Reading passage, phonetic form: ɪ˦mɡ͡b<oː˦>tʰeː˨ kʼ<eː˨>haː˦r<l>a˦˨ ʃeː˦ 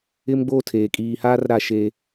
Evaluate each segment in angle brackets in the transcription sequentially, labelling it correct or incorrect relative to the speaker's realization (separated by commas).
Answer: correct, incorrect, incorrect